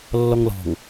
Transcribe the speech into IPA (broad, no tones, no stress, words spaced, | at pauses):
lːɔŋlɔ̤ŋ